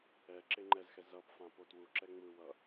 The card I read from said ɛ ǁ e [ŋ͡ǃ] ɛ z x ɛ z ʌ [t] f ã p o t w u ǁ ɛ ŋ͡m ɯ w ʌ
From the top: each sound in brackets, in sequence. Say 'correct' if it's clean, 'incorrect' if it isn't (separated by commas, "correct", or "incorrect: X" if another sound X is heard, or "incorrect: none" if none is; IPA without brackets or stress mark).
correct, incorrect: p